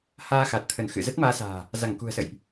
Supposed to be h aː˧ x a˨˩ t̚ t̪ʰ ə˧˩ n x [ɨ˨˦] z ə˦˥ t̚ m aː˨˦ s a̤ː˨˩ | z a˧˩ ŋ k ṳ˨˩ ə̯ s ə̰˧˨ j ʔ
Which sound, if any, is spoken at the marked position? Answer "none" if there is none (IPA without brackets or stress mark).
ɨ̰˧˨